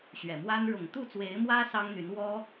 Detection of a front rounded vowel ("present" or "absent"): present